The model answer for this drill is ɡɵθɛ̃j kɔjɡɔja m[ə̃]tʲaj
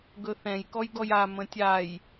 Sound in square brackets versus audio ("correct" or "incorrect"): correct